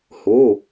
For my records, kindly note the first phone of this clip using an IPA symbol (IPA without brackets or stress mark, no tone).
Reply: h